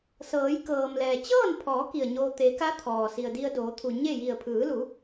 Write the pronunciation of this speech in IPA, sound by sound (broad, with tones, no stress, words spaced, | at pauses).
sɤː˩˧j kɤː˩mlɛː˩ t͡ɕɤː˥˨npʰɔː˩˧ ki˧˩ə̯ɲoː˧ t̪e˩˧ka˧˥ t̪ʰɔː˩ si˩ə̯di˧ə̯doː˩˧t̪ʰu˩ ɲe˥˨ji˧˩ə̯ pʰɯː˩˧lu˩˧